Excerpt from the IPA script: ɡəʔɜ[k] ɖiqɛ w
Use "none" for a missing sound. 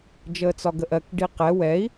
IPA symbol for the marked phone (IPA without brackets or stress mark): k